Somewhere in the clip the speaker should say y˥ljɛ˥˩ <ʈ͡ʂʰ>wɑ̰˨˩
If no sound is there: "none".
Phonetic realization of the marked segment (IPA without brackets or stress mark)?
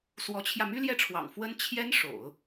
ʈ͡ʂʰ